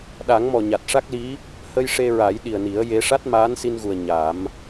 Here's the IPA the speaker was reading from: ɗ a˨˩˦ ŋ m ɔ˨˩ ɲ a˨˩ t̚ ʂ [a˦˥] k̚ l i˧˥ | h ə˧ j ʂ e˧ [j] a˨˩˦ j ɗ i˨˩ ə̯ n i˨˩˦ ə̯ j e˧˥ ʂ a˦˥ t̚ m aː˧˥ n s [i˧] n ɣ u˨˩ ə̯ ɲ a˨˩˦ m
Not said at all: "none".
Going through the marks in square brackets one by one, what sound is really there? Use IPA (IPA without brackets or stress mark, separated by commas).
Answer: a˦˥, ɹ, i˧